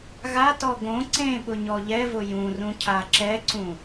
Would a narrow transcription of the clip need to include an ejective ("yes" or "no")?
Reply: no